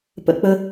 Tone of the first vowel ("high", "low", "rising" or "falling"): high